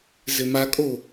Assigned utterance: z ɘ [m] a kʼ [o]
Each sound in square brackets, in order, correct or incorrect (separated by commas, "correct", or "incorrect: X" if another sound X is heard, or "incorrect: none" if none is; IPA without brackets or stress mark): correct, correct